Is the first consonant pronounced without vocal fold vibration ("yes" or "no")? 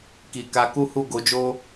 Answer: yes